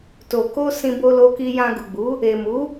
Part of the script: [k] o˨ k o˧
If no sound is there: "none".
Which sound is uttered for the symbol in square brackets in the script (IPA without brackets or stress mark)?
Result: t